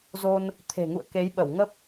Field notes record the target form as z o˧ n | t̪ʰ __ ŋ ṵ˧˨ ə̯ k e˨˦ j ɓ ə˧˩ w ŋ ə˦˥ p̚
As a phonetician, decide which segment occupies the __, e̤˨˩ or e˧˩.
e̤˨˩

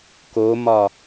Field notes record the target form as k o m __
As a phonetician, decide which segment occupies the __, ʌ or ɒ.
ɒ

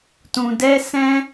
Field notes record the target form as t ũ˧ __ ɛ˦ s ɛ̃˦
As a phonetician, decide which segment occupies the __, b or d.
d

